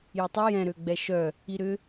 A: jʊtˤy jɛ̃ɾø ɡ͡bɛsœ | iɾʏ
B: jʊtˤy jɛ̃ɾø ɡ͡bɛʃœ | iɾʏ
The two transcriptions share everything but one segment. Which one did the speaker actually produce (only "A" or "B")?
B